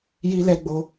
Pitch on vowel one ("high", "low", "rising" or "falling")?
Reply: high